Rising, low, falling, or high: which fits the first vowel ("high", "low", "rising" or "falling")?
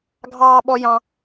high